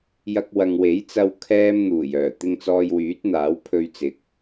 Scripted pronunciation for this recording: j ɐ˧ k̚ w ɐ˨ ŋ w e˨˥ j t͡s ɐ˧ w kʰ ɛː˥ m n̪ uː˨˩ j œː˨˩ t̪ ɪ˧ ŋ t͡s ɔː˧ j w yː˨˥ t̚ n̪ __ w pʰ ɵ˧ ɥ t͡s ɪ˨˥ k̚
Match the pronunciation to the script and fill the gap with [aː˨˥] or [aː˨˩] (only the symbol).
aː˨˥